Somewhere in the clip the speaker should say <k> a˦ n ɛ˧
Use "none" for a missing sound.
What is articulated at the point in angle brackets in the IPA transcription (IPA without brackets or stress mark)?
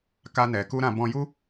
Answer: k